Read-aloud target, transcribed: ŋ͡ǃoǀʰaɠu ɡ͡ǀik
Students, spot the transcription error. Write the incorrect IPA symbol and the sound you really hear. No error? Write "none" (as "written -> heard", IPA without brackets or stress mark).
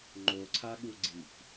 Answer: none